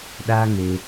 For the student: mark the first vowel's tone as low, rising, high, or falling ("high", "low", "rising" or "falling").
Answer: high